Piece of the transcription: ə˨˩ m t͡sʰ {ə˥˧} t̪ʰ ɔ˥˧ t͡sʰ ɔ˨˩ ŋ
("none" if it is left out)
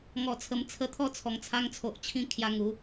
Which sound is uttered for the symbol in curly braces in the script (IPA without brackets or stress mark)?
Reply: ə˧